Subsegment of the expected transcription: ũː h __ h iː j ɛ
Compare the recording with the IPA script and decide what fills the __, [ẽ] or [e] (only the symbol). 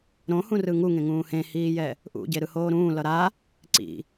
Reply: ẽ